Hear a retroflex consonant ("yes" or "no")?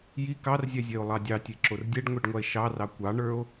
yes